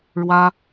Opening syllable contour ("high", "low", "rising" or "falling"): high